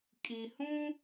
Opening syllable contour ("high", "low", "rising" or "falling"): low